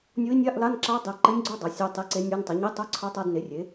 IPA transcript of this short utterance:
nʲo˧˥i̯nʲa˧˥˧ʔla˧˥˧nǁa˧˥ dˤɛ˩˥ǃɘ˧˥nʲɡ͡ǀo˧˥˧ dˤa˩˥sʲa˧˥˧tˤe˧˥˧ ǀe˧˥nʲa˧˥˧ntˤɛ˩˥ ɲe˧˥˧tˤo˧˥˧ǀʰa˧˥ tˤa˧˥˧dne˩˥rʲe˩˥

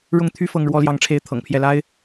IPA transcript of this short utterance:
ɻʊ˥˩ŋt̪ʰy˥ fɤ˥ŋɻwɔ˥ljɑ˥˩ŋʈ͡ʂʰe˥ɪ̯ t̪ʰɤ̰˨˩ŋpʰjɛ˥˩la˥ɪ̯

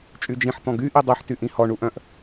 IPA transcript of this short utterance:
t͡ʃʼyd͡ʒĩħ t̪ɔ̃ɡy ʔidˤiħ tyʔĩhɔ ɳuʔœ̃ʔ

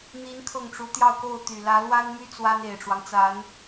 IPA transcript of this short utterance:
n̪i˧˥n kʰɤ˥˩ŋʈ͡ʂu˧˥ t̪jɑ˥˧ʊ̯ko˥˩ʊ̯t̪y˨˩ lä˧˥lwa˥nmy˥ t͡swa˥ne˨˩ɪ̯ʈ͡ʂwɑ˦ŋt͡sa˧˥n

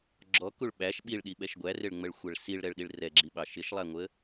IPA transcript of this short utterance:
ɡ͡ǁɔkuɭ ɓæʃ ɓiɭɗiɓɛʃ ɡʷærɪɭŋ͡məɭxʷɛɭ siɭɾɛɭɗiɭ rɛɡ͡ǁiɓɑ ʃɪʃlˠæŋʷə

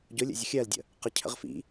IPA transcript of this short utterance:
ɟʊlʲə̰ zʲəxʲɜldʲə̰ | qə cʰə̰ʁfḭ

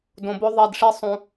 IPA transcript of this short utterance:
dõ˨bo˦ ðˤɛ˦˨dʂi˦ sˤũ˨

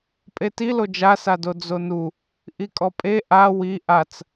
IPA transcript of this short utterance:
pʼetilo d͡ʒasado d͡zonu | ʔikʼɔpʼe ʔa wi ʔat͡s

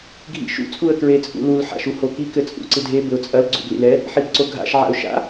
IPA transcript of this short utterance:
ɡʱḭʃṵ t͡sʼuə̯kɹet͡sʼṵlul ħa̰ʃuhoki kɘt͡sʼṵǀɨdʱe bɘʊ̯t͡sʼɐl ɡ͡ǀṵblḭlɛ | ħibǀoɡʱa̰ʃ ʕa̰ʊ̯ʃa̰

